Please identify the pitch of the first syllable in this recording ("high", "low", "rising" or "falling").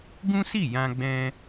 high